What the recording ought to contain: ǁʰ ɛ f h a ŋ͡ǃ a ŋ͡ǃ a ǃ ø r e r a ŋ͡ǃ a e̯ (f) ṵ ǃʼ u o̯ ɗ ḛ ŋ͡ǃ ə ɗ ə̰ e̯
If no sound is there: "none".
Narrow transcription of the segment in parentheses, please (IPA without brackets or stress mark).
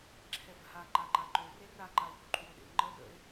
f